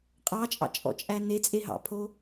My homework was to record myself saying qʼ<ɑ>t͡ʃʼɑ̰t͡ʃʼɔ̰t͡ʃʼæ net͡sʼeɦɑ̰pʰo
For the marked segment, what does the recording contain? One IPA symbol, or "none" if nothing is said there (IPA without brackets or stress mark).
ɑ